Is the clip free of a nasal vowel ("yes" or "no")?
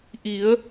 yes